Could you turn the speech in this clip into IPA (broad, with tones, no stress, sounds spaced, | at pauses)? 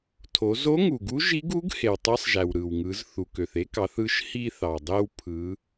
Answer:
tʰ o˩˧ z o˧˥ ŋ u˩ ɡ u˧˥ ʒ i˧˥ ɡ u˧˥ ɡ h e˩ w tˤ ɯ˧˥ sˤ ʒ æ˩ w ɾ ɯ˩ w ŋ ɯ˩˧ z θ u˩ k ø˩ θ e˥ k ɑ˩˧ θ ɯ˧ ʃ h i˧ θ ɑ˩ dˤ e˧ w pʰ ɯ˩˧